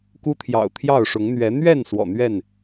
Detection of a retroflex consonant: present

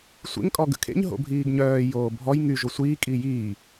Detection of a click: absent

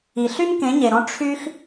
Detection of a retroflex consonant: present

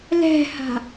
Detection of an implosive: absent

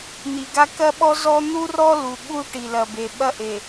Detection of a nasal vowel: absent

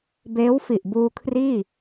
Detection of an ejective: absent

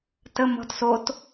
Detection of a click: absent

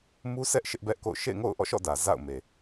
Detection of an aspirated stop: absent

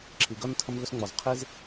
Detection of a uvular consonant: present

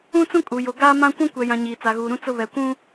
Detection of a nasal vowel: present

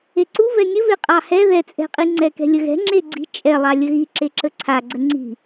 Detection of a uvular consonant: present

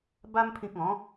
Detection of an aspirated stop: present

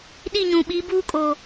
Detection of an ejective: present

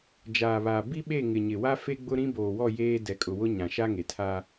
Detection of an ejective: present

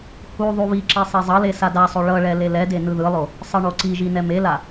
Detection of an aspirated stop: absent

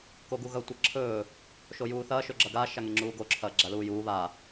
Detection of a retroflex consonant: absent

